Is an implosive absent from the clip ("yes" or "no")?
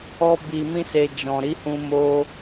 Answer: yes